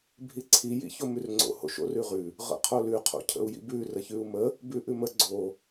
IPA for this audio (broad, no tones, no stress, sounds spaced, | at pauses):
bʱ i ǀʰ i j ḭ ç o m ʉ r ŋ͡ǀ o̰ h o̰ ʃ o̰ r ʉ ʁ ʉ | ʁ ə̰ qʰ o l ʉ qʰ o̰ cʰ ə̰ u̯ j ḭ b ʉ r ə ç ʉ u̯ m ə | b ʉ ʔ ʉ m ə ɡ͡ǀ o